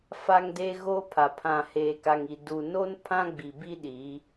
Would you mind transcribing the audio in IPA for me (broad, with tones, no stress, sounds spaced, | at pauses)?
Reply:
f a˦ ŋ d eː˦ ɣ oː˦ pʰ a˨ pʰ ã˨ h eː˨ k a˨ ŋ i˨ d u˨ n o˦ n pʰ ã˦ ɡ͡b i˨ b i˦ ɗ i˨˦